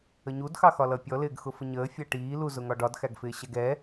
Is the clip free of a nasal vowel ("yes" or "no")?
yes